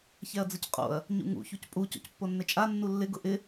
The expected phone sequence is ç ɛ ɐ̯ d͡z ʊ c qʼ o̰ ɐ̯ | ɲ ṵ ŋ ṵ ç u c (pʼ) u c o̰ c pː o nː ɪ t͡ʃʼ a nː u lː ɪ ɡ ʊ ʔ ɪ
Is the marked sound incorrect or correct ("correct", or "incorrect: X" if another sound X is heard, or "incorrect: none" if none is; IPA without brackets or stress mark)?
correct